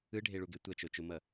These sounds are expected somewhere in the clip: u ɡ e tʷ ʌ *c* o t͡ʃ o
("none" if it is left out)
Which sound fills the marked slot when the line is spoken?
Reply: t͡ʃ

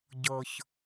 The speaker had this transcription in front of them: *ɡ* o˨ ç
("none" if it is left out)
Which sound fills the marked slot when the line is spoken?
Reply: ɟ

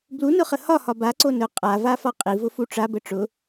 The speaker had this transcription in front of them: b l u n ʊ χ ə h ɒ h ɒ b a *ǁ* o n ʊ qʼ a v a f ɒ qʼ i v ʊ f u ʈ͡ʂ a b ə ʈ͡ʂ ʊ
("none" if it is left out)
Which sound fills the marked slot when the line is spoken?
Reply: ǀ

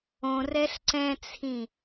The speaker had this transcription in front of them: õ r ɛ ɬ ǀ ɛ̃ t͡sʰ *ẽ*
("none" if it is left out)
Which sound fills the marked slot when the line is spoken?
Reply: ĩ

